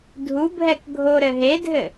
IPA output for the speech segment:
dʱ u bʱ ɛ k ɡʱ o ɾ ɘ ɦ e dʱ ɘ

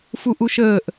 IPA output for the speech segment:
f u ʔ u ʃ əː ʔ

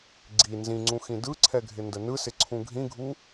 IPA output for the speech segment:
ɡ͡ǀ i n z ĩ ŋ͡ǀ ũ x ĩ d ɯ ǀʰ ɛ ɡʱ ɪ n d ə n ɯ s ɪ ǀʰ ũ ɡʱ ĩ ɡʱ u

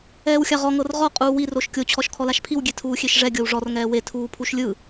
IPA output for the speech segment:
ɛː w xʲ a ʁ ɔ ŋ ɤ r ʁ ɔ qʼ uː w i r o ʃ kʲ o t͡ɕʰ ɔ ʃ kʰ ɔ l a ʃ pʰ i w ɡʲ e tʰ uː xʲ e ʃ ʐ ɛ ɡʲ ɤ w ʐ ɔ r ŋ ɛː w e tʰ uː pʰ u ʃ lʲ ɯ

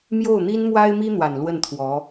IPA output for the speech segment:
m j o˥˩ ʊ̯ n̪ i˥ n m w a˥ ɪ̯ m i˥ n̪ w a˨˩ n l w ə˥˩ n t̪ʰ w ɔ˧˥

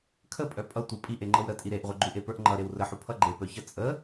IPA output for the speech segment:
kʰ ə pʼ œ pʼ ʌ tʷ ʌ pʼ i ʔ e ŋ͡ǃ ɤ w ɾ ə tʼ i ɾ e ʔ ʁʷ e ɡ͡ǃ u ʔ e p ə˞ ʔ ŋ͡ǃ ʌ ɾ e w r ə ħ u pʰ ʌ ɡ͡ǃ e p œ ç ʌ t͡sʼ ə

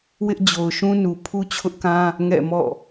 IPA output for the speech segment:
w ɪ˦ ʔ d͡ʑ o˨ ʊ̯ ʃ ũ˦ n u˨ pʰ u˦ t͡ɕʰ ʊ˦ ʔ k ã˦ | ŋ ɛ̰˦˨ m ɔ̰˦˨

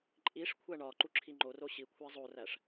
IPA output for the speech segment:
ǃʼ i ʂ kʷʰ æ ɳ ɒ ǃ u ǁʰ i ŋ͡ǃ o r o ɕ i kʷʰ æ zˤ o r æ ʂ

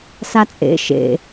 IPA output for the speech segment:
s a t͡sʼ ḛ ʃ ḛ

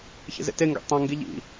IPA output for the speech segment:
ç ḛ z ḛ t e ŋ ɡ ḛ tˤ ã ŋ ɡ i ʎ ḭ

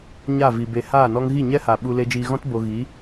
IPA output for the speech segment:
ɲ a˦˨ v i˨ b e˨ h aː˦˨ n ɔ˦ ŋ ɣ i˦˨ ɲ ɛ˦ h a˨ ɓ u˧ l e˧ d͡ʒ iː˧ ɣ ɔ̃˦ t b o˧ ɣ i˨˦

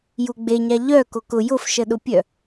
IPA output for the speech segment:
j u ɡ͡b e ɲ a ʎ œ k o k ʊ j ʊ f ʃ ə ɗ ʊ pʲ œ

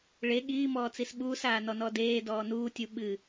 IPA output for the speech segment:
ɭ e ɠ iː m ɔː t͡s i s ɓ uː s aː n ɔ n ɔ d eː d ɔː n uː tʲ u ɓ ɨ

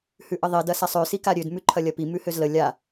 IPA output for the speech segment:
h ʉ ʔ ə ðˤ i d ɐ s a sˤ ø s i k a ɾʲ ø d m ʉ ǃʰ ɐ lʲ ɐ p i m ʉ h ø z l ə lʲ a

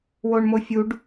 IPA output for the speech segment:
w o ɳ m o fʲ u ɖ

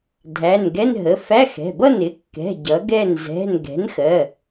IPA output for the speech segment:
dʱ æ˩˧˩ n ɡ ɛ˧˥˧ n ɦ ə˩˧˩ f æ˧˥˧ x ɛ̤˩˧˩ b ʌ˥˩ n ɪ˩˥ kː ɛ̤˩˧˩ ɟ ʌ˩˥ ɡ ɛ˥˩ n z ɛ̤˩˧˩ n ɡ ɛ̤˩˥ n x ɜ˩˧˩

